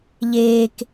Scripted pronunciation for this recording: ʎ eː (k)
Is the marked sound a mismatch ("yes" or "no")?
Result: no